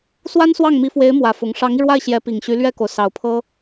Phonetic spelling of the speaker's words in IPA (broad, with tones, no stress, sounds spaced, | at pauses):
s w a˥ n s w ɑ˥˩ ŋ m i˧˥ f w e˧˥ ɪ̯ m w ä˨˩ f ʊ˧˥ ŋ ʂ ɑ˧˥ ŋ i˧ ɻ w a˥˩ ɪ̯ ɕ j ɛ˧˥ p i˨˩ ŋ ɕ y˧˥ l ɥ ɛ˥˩ k o˩ ʊ̯ s ɑ˨˩ ʊ̯ pʰ ɤ˥